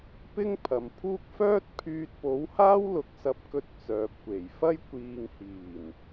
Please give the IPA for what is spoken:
p ɪ˥ ŋ pʰ ɐ˨ m pʰ uː˥ k̚ f œː˥ t̚ pʰ yː˧ t̚ p o˨˥ w h aː˥ w l ʊ˨ k̚ s ɐ˧ p̚ k ɵ˧ t̚ t͡s œː˨ p̚ kʷ e˨˩ j f ɐ˥ j kʷ iː˨ ŋ h iː˨˩ n

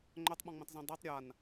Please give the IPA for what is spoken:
ŋ͡ǃ œ tˤ ɓ ɔ̃ ŋ͡m ĩ tˤ z ĩ dˤ i tˤ ɾʲ a n

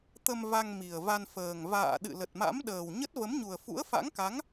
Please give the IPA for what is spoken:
t̪ ə˧ m v a˧ ŋ m i˨˩ ə̯ v a˧ n f əː˨˩ ŋ v a̰ː˧˨ ɗ ɨ̰˧˨ l ə˨˩ t̚ m a̰˧˥ m ɗ əː˨˩ w ɲ ə˦˥ t̚ v ə˨˦ m ɲ u˨˩ ə̯ f ṵ˧˥ ə̯ f a̰˧˥ ŋ k a˨˦ ŋ

